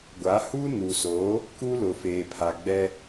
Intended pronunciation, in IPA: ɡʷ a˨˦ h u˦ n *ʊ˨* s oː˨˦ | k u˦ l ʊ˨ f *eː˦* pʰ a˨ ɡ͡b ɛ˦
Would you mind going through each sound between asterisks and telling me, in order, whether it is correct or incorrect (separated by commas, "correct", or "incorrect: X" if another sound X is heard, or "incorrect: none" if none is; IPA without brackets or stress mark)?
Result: incorrect: u˨, incorrect: eː˨